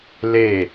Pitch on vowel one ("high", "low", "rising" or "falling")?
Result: falling